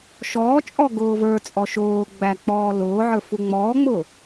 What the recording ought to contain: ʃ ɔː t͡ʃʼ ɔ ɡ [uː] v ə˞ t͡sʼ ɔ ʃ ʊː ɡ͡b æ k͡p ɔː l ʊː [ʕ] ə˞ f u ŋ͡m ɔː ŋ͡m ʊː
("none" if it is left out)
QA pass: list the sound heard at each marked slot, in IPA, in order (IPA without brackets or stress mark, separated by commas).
ʊː, ʕ